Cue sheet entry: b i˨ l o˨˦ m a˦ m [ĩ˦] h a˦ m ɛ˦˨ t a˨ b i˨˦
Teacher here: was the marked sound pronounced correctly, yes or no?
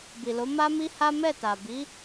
no